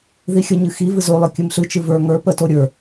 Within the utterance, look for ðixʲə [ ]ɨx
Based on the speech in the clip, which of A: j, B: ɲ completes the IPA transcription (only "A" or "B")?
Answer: B